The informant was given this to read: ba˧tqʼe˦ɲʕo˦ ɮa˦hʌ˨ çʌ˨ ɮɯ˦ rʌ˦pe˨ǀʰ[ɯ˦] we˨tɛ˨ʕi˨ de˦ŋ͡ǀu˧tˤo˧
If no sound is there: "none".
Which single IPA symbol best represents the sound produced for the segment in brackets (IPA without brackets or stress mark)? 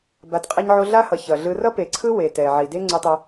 ɯ˦